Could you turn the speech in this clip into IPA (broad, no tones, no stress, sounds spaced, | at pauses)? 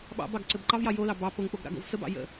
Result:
ɓ ɑ̰ b ɑ ɡ ǀ ɘ b ǃ ɑ v j ɑ j o l ɑ b ɑ p o ŋ k͡p o ɡ ɾ ɑ̰ ɡ o̰ v s ə b ɑ̰ j ə̰